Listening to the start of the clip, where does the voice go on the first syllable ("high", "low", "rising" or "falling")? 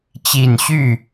low